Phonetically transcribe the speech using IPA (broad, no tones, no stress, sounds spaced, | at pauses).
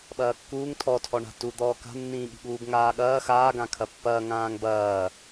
ɓ ɐː kː uː ŋ tʰ ɔ tʰ ɔ ɳ a̤ t u d̪ ɔː k a̤ nː ĩː ɠ i̤ ɠ uː b ŋ aː ɠ ɐː x aː ɡ ã kʰ ɐ pː ɐː ŋ ãː ŋ b ɐː